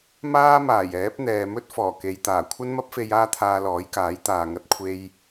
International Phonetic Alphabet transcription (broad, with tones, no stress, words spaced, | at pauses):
maː˥maː˨˩jɛː˨˥p̚n̪ɛː˨ mɵ˥t̚ fɔː˨˩ke˨˧jt̪aː˨˩ kʷʰɐ˥nmɐ˥p̚fe˧j aː˥t̪ʰaː˧lɔː˨˥jkaː˨˥j t̪aː˨ŋɐ˧t̚kʷʰe˧j